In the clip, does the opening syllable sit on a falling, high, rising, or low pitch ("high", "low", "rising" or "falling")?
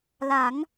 rising